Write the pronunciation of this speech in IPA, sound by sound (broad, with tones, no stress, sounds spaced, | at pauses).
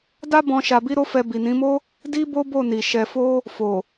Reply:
d a˦ b ɔ̃˧ ʃ a˧ b i˦ ɾ o˦ f ɛ˧ b i˨ n ĩ˨˦ m o˦ | d i˦ b o˦ b o˦˨ n i˨ ʃ ɛ˨ f o˧ | f o˨